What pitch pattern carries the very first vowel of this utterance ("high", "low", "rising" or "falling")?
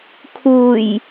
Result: low